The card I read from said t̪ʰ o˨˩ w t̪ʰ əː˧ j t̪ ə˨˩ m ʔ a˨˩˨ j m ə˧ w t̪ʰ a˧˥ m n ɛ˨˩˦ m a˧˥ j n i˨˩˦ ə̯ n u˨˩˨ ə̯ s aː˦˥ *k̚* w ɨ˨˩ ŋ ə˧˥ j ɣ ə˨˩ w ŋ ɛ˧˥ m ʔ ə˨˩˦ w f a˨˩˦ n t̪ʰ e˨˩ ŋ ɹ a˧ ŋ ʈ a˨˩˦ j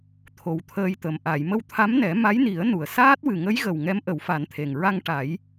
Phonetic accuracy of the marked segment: incorrect: t̚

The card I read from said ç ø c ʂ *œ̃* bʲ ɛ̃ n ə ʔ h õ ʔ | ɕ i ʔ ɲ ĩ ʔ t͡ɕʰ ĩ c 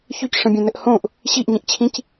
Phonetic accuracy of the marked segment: incorrect: ə̃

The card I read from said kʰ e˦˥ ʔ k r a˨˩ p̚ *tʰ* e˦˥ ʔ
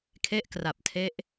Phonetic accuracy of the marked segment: correct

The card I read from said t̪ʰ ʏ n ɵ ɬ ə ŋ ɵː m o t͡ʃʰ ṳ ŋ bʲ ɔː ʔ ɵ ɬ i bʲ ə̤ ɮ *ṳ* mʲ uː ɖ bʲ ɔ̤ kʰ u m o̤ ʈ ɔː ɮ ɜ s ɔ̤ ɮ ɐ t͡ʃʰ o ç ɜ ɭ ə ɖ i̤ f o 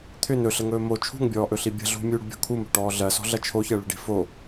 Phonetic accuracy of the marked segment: correct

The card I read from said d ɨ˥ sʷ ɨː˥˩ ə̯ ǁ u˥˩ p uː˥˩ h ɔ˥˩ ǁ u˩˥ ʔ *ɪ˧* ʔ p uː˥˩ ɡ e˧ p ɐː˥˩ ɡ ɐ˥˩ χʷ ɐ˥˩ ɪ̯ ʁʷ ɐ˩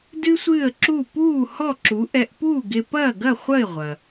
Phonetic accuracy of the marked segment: incorrect: ɛ˧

